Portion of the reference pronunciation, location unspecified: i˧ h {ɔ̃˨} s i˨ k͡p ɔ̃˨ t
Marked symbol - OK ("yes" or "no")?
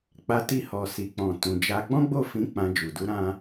no